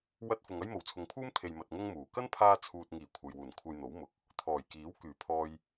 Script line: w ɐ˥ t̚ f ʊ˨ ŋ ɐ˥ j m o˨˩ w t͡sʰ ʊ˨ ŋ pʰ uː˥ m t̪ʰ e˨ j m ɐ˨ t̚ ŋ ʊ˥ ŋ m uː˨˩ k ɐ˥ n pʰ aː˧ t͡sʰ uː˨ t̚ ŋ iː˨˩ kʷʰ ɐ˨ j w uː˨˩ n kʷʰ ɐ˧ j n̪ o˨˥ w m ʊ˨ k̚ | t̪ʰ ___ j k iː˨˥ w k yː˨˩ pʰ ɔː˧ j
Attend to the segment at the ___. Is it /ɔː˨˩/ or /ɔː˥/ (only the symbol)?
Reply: ɔː˨˩